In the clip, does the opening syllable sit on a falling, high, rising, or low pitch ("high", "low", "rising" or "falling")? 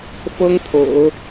high